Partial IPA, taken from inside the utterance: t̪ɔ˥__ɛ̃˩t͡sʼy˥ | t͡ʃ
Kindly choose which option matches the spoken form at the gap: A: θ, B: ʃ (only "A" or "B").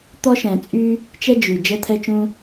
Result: B